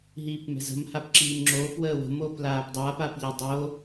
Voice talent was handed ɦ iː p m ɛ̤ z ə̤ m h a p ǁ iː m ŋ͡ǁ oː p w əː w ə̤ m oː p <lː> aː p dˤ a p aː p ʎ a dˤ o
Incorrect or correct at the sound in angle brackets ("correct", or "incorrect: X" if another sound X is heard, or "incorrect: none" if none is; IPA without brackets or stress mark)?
incorrect: l